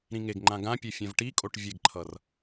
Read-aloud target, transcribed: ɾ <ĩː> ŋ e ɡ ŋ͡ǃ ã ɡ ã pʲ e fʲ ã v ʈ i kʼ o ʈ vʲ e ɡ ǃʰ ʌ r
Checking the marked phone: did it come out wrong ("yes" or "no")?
yes